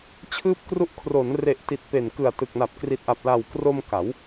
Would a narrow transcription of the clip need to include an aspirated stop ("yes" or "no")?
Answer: yes